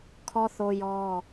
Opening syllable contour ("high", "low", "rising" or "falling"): high